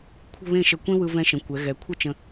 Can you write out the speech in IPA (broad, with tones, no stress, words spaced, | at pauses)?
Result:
kʷʰə̤˥˧ βẽ˥˧ ʃə˧˩kʷẽ˥ wɯ˧vɛ̃˧ʃə̃˩˧ kʷɛ˩˧ɣɛ˩˧ kʷʰə˥t͡ʃə̃˧